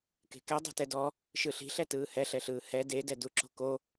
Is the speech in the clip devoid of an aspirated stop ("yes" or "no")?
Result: yes